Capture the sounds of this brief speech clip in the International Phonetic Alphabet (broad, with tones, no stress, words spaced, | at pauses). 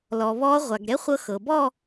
lɔ˩ βɔ˧˥ ʁʷa˩ɡ ɾɛ˧˥χʷɤ˧ xɤ˩bɔ˥˧